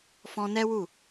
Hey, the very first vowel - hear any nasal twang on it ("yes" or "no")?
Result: yes